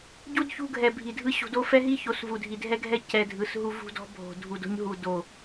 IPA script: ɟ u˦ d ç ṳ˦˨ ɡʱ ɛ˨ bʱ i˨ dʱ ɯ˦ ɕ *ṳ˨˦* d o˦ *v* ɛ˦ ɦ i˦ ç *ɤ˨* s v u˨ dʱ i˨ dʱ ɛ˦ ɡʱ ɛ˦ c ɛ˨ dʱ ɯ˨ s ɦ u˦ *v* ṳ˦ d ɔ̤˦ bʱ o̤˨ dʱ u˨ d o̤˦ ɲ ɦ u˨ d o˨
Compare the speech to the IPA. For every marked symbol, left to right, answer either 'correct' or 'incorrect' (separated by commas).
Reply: correct, incorrect, incorrect, correct